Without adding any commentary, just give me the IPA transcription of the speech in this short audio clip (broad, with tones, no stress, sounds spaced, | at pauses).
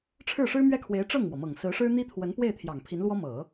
ʈ͡ʂʰ ɻ̩˥˩ ʂ ɻ̩˥ m ɥ ɛ˥˩ kʰ w e˧˥ ɪ̯ ʈ͡ʂ ɤ˥˩ ŋ m w ɔ˩ m ɤ˨˩ ŋ s ɹ̩˧˥ ʂ ɻ̩˥ n̪ i˥ t̪ʰ w ə˧˥ n p w e˥˩ ɪ̯ t̪ʰ j ɑ˨˩ ŋ pʰ i˧˥ n l w ɔ˥ m ɤ˨˩˦